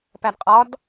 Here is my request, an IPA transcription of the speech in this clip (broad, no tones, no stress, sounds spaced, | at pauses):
p æ d qʼ ɒ d